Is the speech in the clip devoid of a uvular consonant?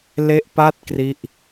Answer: yes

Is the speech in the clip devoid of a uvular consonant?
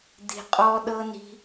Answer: no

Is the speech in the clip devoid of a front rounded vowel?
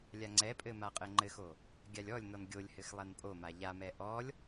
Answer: yes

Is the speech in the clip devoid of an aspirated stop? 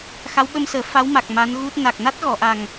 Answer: yes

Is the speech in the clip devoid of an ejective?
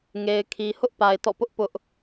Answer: yes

